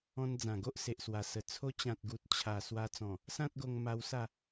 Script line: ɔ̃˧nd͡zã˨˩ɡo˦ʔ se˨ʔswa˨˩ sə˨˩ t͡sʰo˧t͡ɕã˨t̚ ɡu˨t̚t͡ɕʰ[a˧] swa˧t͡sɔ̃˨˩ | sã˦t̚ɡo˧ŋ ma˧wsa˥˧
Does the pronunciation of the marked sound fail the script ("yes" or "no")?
yes